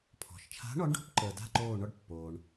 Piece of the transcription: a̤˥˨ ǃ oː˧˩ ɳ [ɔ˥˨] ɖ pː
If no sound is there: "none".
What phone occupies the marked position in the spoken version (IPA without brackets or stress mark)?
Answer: ɔ˥˨